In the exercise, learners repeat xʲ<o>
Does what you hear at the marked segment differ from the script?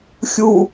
yes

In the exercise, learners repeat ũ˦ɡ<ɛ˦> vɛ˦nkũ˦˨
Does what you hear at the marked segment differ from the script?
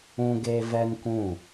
yes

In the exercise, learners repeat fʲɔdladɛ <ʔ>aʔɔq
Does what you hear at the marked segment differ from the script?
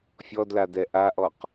no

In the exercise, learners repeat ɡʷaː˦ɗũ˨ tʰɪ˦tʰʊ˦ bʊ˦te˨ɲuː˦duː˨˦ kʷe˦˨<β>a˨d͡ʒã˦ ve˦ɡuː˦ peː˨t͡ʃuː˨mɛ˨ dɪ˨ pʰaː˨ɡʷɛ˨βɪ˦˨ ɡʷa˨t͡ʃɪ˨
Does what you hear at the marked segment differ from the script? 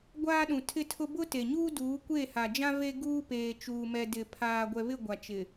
yes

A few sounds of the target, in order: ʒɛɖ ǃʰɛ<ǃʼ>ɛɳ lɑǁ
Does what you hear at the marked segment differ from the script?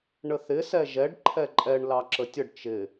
no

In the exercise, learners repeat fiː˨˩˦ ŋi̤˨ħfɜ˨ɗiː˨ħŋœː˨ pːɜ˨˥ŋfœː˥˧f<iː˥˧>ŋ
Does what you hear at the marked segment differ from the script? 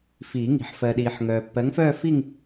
yes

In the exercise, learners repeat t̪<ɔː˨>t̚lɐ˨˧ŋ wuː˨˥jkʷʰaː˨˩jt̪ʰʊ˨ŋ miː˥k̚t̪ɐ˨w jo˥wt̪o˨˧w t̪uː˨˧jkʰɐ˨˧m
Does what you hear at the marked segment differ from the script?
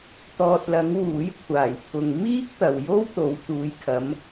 no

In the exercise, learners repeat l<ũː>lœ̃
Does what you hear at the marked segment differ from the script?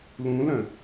yes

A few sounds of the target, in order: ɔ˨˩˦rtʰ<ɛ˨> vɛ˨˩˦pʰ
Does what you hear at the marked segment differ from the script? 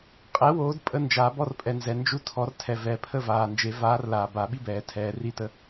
no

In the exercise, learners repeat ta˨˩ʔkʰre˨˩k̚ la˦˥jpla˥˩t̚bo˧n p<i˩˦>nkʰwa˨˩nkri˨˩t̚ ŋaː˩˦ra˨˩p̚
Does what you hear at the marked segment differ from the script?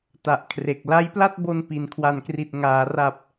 no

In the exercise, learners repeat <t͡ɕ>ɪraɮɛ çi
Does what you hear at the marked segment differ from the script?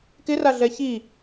yes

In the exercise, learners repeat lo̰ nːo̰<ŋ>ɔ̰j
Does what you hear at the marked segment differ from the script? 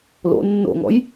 no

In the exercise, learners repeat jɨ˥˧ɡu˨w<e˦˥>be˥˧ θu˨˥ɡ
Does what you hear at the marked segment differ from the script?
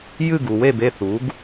yes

